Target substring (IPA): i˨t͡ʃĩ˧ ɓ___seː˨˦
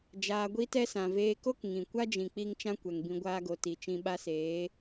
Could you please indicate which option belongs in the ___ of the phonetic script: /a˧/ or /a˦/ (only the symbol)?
a˧